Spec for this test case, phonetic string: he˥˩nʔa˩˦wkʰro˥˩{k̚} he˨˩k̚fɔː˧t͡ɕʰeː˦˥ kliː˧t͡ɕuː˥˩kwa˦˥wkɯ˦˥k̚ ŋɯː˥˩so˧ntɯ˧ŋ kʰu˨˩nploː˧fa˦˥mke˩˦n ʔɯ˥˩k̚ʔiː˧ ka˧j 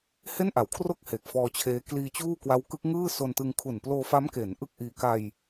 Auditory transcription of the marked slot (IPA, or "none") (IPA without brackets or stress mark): k̚